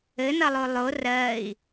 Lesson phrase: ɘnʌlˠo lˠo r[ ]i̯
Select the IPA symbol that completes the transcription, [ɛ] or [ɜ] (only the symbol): ɜ